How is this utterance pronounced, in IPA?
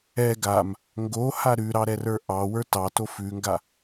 ɛ ɡ a m | ŋ ɡ o h a ɾ ʉ ɾ ɑ ɾ ɛ r ə˞ ʔ ɑ w ə˞ t ɑ t o f ʉ ŋ ɡ a

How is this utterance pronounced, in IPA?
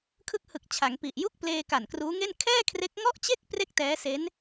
kʰ ɯ˦˥ k̚ h ɯ˨˩ k̚ t͡ɕʰ a˩˦ ŋ p i˨˩ ʔ j u˥˩ k̚ p l eː˧ k a˨˩ n k r uː˦˥ ŋ e˥˩ n kʰ ɛː˥˩ kʰ r e˦˥ k̚ ŋ ɔ˥˩ ʔ t͡ɕ e˥˩ k̚ p r e˥˩ k̚ t ɛː˦˥ s e˦˥ n

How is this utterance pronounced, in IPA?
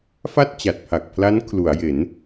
f a˥˩ t̚ t͡ɕ a˨˩ t̚ pʰ a˨˩ k̚ pʰ l a˦˥ n kʰ l u˩˦ a̯ j e˩˦ n

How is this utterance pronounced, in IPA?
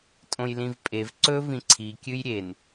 tʼ õ j l ĩ v pʼ e v ǀ ɵ v ĩ ǀʰ i kʲ ɨ j ɾʲ e n

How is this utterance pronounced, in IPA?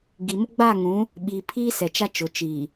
ɡ i˨ m ʊ˦ ɡ͡b aː˦˨ ŋ ũ˨˦ | ɓ iː˨ pʰ iː˦ s ɛ˨ t͡ʃ a˦ t͡ʃ ʊ˨ t͡ʃ iː˨

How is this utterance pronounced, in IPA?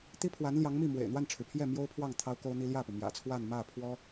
t̪ i˥ pʰ w a˧˥ n l j ɑ˧˥ ŋ m i˥˩ m w ḛ˨˩ ɪ̯ n̪ w a˥˩ n ʈ͡ʂʰ ɻ̩˩ pʰ j ɛ˥˩ m j o˥ ʊ̯ pʰ w ɑ˥˩ ŋ t̪ʰ ɑ˥ ʊ̯ k o˥ ʊ̯ n̪ i˥ l j ä˥˩ p u˩ m j ä̰˨˩ t͡sʰ w a˥˧ n m ä˥˩ pʰ w ɔ˥

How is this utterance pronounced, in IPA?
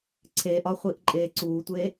ǀʰ e ʔ ɒ χʷ i ʔ ǃʼ eː ǀ uː tʷ e

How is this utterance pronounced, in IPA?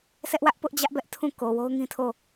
s ɛ˦ ʔ w ä˦ ʔ p ʊ˦ ʔ d͡ʑ ä˦ ʔ b ɛ˦ ʔ tʰ ũ˦˨ k o˨ w o˦ ʊ̯ ŋ ĩ˦ tʰ o˦˨

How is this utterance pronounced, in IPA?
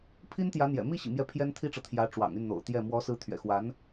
pʰ i˥ n t̪ j ä˧˥ n̪ j ɛ̰˨˩ m i˥˩ ɕ ḭ˨˩ m j ɛ˧˥ pʰ j ɛ˥ n t̪ʰ i˥ ʈ͡ʂ ɤ˨ t̪ʰ j ä˧˥ ʈ͡ʂ w ɑ̰˨˩ ŋ y˥˩ n n̪ o̰˨˩ ʊ̯ t̪ j ɛ˥˩ m w ɔ˧˥ s ɹ̩˧˥ t̪ʰ ɥ ɛ̰˨˩ x w a˧˥ n

